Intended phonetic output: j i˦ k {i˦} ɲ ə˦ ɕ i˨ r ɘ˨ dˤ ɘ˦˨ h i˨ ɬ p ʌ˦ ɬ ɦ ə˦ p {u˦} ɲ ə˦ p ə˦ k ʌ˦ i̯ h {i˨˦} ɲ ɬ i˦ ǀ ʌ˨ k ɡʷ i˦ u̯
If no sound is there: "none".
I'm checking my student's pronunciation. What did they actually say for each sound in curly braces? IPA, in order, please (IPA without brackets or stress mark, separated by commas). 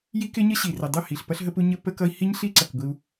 ɪ˦, u˦, i˦